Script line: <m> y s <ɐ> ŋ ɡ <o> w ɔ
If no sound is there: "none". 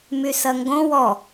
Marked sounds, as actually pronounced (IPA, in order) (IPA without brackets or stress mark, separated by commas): m, ɐ, õ